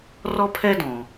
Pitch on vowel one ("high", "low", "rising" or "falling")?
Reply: high